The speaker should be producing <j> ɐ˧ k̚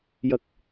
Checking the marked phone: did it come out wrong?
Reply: no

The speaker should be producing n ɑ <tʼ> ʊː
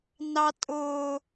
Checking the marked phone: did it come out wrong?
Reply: no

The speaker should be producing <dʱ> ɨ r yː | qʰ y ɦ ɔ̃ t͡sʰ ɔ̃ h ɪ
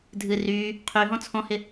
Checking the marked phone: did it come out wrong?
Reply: no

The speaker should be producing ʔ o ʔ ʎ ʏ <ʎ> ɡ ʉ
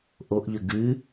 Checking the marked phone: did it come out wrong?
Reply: yes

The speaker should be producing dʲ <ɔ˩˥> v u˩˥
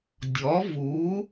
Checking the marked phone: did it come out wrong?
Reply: no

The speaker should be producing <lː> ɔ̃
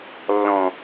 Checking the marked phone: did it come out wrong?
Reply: no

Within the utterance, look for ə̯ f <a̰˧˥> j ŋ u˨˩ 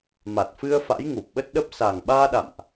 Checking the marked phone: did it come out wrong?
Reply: no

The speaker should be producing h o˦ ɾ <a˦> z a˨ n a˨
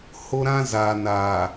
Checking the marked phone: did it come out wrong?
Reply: yes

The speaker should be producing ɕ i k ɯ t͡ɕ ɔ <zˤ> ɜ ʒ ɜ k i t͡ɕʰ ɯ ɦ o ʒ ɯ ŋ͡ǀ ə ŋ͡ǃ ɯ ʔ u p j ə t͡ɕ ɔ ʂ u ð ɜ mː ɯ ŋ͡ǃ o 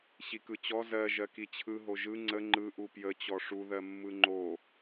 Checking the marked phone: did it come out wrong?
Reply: yes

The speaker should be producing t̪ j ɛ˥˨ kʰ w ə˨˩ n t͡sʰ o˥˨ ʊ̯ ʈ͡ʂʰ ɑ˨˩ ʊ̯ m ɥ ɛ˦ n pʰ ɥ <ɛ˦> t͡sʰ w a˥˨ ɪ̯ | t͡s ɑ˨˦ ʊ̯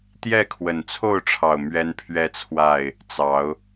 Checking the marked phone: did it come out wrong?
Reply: no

